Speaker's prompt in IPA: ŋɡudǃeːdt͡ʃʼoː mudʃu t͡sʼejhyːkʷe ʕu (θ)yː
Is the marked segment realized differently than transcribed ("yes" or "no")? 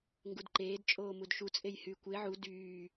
yes